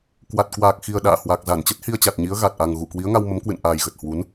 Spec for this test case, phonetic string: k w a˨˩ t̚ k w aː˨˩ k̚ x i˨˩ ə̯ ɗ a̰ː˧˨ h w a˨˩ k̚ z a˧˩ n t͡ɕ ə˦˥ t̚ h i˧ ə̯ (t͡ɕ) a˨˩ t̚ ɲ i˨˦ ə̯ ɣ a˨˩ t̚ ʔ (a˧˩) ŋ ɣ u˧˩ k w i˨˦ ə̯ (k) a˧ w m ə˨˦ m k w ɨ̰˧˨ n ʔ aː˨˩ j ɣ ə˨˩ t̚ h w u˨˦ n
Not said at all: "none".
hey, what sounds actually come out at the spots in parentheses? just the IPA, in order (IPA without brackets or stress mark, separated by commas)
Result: t͡ɕ, a˨˩, ŋ